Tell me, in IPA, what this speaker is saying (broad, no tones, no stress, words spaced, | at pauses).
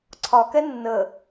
ǀʰɒkɛ nːə